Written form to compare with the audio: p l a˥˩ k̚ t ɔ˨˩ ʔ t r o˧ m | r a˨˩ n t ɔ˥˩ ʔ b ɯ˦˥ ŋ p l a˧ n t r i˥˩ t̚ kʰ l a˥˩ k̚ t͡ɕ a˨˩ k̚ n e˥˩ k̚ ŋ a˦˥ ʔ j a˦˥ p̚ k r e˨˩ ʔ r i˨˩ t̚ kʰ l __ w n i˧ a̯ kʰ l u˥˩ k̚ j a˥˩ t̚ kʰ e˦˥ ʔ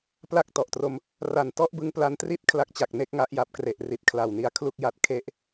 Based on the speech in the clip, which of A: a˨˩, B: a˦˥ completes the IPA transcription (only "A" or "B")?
A